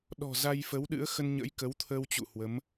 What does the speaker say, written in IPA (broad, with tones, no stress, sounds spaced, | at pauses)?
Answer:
ɗ ɔ̤˨˩ z a˧ j f ə˨˦ w ɗ ɨ̰˧˥ ə̯ x ə˧ n ɲ ə̰˧˥ j k ə˨˦ w t̪ʰ ə˧ w t͡ɕ ṵ˧˨ h w ə˨˦ m